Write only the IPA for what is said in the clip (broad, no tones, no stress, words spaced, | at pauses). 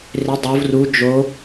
rɪ dˤov ru d͡ʒo